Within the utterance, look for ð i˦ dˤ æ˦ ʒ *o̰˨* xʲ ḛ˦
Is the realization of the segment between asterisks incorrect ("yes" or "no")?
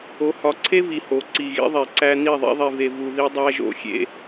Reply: yes